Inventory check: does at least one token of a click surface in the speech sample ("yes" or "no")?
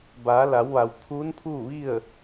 no